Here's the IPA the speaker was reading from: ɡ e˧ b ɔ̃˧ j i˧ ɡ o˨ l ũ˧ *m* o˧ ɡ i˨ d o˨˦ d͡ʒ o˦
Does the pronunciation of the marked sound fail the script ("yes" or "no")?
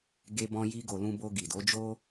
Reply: yes